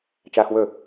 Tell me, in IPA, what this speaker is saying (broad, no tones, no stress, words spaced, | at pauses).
t͡ʃaːxwɵ